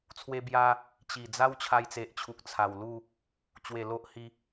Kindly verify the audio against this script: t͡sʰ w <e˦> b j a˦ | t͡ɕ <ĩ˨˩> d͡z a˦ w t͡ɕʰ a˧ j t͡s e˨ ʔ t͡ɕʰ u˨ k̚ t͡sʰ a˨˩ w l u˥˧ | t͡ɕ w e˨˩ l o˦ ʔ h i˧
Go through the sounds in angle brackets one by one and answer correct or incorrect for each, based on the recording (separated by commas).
correct, incorrect